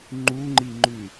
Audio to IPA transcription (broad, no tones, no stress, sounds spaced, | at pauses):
ŋ͡ǃ u ŋ͡ǃ i ŋ͡ǃ ʉ